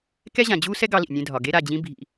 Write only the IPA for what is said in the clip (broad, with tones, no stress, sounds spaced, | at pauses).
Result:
k ɛ˦ ʑ ã˨ d͡ʑ uː˦ s ɛ˦ ɡ ɑ˦ l ḭ˨ nʲ ẽ˦ dʱ ɒ˨ ɡ e˦ ɾ a˨ d͡ʑ ĩ˦ bʱ ḭ˦